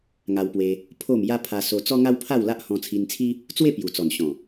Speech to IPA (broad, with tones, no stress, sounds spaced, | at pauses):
ŋ a˧ w p w e˧ | pʰ o˥˧ m j a˦ pʰ a˧ s o˧ t͡s ɔ˦ ŋ a˦ w pʰ a˥˧ w l a˦ ʔ h ɔ̃˧ t͡sʰ i˧ n t͡sʰ i˦ | t͡s w e˥˧ p j u˨˩ t͡s ɔ˨˩ n ɕ ɔ̃˨˩